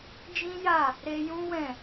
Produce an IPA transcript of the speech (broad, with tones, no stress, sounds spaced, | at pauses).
d͡ʒ ĩ˦ j a˦˨ | ɾ e˧ j ũ˦ w ɛ̃˦˨